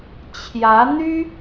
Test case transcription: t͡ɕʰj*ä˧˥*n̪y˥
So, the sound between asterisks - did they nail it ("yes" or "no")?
yes